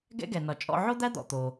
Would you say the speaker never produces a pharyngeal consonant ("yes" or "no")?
no